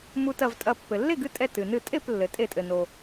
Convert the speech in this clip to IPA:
mu˧tɐ˧˩vtʼɐ˧˩ pːɘ˩lːe˥˩ɡɨ˧tʼɛ˧˩ tɨ˩nɨ˧˩tʼe˥˩p lːɘ˩tʼe˧˩˧tʼɘ˩no˩

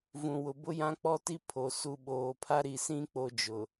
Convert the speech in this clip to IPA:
vũ˨wʊ˨ bʊ˦jã˦k͡pɔ˦ti˦ pʰo˨ su˨ɓoː˨pʰa˦ ɾi˨sĩ˦ k͡po˦d͡ʒʊ˨

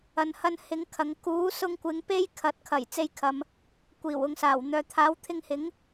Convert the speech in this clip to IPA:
ɐ˨nhɐ˧nhɪ˨˧ŋ kʰɐ˨˧ŋ kuː˨˥sʊ˧ŋkʷɪ˨˧ŋ pe˥j kʰɐ˨˥t̚kʰɐ˨˩j t͡se˧jkʰɐ˨m | kʷiː˨˩w ʊ˨ŋsaː˨˩w n̪œː˨t̪ʰaː˨˥w t̪ʰɪ˧ŋhɪ˨˥ŋ

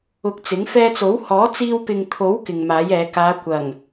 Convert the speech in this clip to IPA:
ʊ˧k̚t͡sɪ˨˥ŋ fɛː˧t͡so˨˥w hɔː˨˥t͡siː˧wpɪ˨ŋt̪ʰo˨˥w kɪ˨ŋmaː˨˥jɛː˨˧ kaː˨˧kʷɐ˨˩ŋ

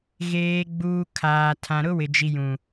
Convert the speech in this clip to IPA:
ɣeː˨ɡ͡buː˨ kʰaː˨ tʰã˨ɾʊ˦wɪ˨ d͡ʒi˨jũ˨

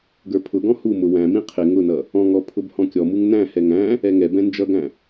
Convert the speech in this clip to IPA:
ɡə˞pʰʊɡɔ̃ humʊ wæ̃mĩ qʰɪ ŋʊnʌ | ɔ̃ŋɔ pʰʊbhɔ̃kʲɔmuŋ næ̃hɛ ŋæ̃ | ɛŋɛbɛ̃ nd͡ʒʌɡæ̃

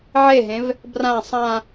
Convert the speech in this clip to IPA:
ʕeɦẽv | brã sˤã

